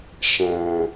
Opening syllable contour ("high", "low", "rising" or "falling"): low